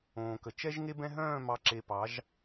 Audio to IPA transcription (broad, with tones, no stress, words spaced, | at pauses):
õː˨kə˨ t͡ʃɛ˦ʒŋe˦ bɛ̃˦ɦœ̃ː˦˨mɑ˨˦ǁe˨ pɑ˨˦ʒ